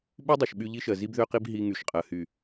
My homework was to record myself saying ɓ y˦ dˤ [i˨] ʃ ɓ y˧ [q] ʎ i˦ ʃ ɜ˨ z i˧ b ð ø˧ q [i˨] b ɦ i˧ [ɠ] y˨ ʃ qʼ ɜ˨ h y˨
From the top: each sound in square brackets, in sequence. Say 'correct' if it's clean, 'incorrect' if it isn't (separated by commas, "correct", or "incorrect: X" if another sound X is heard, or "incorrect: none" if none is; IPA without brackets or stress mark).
correct, incorrect: none, incorrect: i˧, incorrect: ŋ